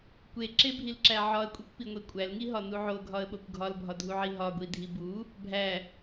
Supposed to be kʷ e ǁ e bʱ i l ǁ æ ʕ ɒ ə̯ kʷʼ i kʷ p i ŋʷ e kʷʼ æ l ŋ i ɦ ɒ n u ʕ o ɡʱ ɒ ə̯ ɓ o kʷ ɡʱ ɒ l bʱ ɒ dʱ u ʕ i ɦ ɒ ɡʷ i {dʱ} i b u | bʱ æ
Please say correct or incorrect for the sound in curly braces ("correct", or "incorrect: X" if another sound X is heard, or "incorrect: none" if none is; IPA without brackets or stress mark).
correct